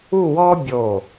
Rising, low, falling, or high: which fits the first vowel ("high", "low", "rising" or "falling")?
falling